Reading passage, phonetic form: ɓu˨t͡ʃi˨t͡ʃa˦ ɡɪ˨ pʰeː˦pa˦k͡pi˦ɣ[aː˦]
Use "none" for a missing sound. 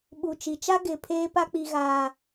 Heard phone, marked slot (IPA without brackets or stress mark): aː˦